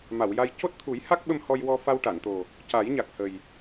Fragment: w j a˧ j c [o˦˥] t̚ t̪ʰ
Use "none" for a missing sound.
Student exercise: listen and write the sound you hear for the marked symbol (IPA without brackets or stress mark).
o˦˥